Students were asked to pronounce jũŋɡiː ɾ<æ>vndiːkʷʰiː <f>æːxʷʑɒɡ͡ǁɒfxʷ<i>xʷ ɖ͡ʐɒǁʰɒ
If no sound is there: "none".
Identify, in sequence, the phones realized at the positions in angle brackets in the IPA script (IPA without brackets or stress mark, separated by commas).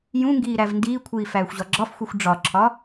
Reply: æ, f, i